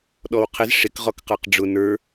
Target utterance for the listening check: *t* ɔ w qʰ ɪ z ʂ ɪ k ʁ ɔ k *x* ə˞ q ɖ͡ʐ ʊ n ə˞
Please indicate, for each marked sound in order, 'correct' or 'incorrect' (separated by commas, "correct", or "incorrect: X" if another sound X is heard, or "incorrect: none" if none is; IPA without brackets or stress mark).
incorrect: ɗ, incorrect: q